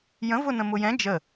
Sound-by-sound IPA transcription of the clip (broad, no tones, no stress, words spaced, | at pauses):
jə̃vʊnə̃ mʊjɛ̃ d͡ʒə